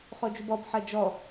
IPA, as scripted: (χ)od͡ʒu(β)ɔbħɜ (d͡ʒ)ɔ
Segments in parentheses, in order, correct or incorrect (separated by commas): correct, incorrect, correct